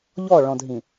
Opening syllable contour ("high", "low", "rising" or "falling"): falling